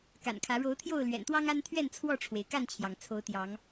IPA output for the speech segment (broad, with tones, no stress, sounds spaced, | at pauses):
k a̰˨˩ n kʰ ä˨˦ ɻ o˨˦ ʊ̯ t̪ʰ j o˥˨ ʊ̯ l ɥ ɛ̰˨˩ n t̪ w ɑ˦ ŋ a˦ n t̪ʰ ɥ ɛ˥˨ n t͡sʰ w ɔ˥˨ ʈ͡ʂʰ w e˩ ɪ̯ k a˥˨ n t͡ɕʰ j ɑ˩ ŋ t͡sʰ o˨˦ ʊ̯ t̪ j ɑ˨˦ ŋ